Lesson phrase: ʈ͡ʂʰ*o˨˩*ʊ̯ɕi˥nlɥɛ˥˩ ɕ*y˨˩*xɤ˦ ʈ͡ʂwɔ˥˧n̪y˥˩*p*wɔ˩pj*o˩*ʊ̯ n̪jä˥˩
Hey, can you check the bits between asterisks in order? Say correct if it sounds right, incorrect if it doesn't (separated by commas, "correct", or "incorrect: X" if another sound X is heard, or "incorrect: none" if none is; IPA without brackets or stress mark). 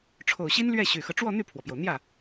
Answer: correct, correct, incorrect: pʰ, correct